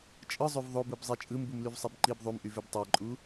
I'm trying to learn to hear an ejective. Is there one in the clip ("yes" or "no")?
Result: yes